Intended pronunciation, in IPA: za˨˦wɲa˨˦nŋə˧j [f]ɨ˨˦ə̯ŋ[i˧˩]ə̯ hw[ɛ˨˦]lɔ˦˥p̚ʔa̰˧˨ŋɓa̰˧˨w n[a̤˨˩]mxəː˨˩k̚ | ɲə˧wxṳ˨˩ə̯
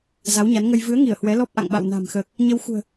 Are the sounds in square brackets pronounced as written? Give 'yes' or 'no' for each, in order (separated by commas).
no, yes, yes, yes